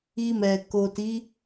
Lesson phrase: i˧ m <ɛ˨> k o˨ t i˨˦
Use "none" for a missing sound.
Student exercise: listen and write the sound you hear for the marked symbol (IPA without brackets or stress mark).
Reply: ɛ˨